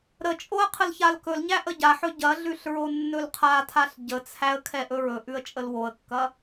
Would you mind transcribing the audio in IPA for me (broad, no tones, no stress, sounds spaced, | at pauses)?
ɾ ə t͡ʃʼ o ə̯ qʰ ə l ç a l k ɵ l ɲ æ ʔ ə ɟ a ħ ɵ ɟ ɐ ɮ ʉ ɬ ɹ o nː ɵ l qʰ a tʰ a ɬ ɟ ə t͡sʰ æ ə̯ kʰ ɛ ʔ ɵ ɹ ɵ ʔ ʉ ə̯ t͡ʃʼ ə l w o ə̯ kː ɐ